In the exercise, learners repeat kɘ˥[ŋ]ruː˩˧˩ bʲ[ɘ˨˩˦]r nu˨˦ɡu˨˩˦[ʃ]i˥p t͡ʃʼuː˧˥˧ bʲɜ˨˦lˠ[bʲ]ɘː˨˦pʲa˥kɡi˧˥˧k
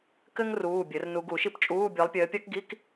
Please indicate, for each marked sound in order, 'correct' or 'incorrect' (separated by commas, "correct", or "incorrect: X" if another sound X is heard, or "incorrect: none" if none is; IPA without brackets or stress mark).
correct, correct, correct, incorrect: pʲ